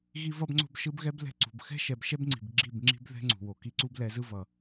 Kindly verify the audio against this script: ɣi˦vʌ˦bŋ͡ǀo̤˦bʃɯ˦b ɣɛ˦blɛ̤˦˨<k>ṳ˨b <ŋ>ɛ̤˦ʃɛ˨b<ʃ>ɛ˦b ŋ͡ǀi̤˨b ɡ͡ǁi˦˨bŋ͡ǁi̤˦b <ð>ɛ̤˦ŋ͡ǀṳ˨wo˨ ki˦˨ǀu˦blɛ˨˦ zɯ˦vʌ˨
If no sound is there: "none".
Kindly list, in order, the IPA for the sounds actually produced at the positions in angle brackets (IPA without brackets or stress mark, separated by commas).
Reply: ǀ, x, ʃ, ð